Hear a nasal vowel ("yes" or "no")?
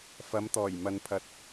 no